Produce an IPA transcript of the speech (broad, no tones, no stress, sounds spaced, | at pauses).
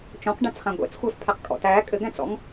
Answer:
t͡ʃ ɔ̃ q ɖ æ̃ t͡s χ æ̃ ɡʷ ɛ̰ t͡s xʷ æ f pʰ æ q kʼ ɔ̰ t æ kʼ ɘ ɡ æ̃ t͡s ɔ̰ ŋ